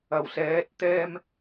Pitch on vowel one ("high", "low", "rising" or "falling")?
low